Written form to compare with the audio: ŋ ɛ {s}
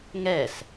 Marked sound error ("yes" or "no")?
no